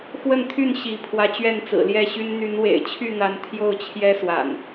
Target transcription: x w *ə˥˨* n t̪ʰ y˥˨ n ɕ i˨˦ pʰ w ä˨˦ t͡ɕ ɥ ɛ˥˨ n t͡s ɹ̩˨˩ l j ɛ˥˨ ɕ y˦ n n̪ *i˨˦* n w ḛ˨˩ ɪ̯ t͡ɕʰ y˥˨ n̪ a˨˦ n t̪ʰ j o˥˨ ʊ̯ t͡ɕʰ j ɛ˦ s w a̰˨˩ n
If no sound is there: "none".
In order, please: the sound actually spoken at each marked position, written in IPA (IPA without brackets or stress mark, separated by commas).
ə˥˨, y˨˦